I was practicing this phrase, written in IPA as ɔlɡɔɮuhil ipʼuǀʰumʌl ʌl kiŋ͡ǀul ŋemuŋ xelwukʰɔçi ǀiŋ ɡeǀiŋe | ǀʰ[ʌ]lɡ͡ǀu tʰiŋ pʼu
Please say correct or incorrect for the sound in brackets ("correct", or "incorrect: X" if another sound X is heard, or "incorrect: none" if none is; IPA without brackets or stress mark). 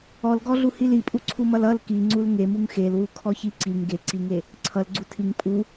correct